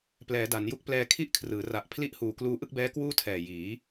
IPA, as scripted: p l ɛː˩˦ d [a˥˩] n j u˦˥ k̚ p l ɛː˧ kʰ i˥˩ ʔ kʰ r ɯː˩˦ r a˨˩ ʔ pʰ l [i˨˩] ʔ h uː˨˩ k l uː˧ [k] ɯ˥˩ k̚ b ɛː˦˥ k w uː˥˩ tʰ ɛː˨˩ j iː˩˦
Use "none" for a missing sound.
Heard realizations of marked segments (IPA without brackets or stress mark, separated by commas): a˩˦, i˥˩, ʔ